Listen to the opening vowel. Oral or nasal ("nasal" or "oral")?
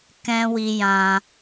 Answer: nasal